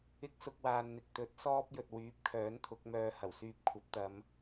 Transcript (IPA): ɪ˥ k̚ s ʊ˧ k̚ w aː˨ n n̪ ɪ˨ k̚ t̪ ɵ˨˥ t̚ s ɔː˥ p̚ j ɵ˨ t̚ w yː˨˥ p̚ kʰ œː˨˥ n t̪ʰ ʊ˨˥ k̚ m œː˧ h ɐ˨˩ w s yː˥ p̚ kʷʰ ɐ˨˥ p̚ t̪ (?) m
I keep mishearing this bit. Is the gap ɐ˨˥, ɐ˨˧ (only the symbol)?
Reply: ɐ˨˧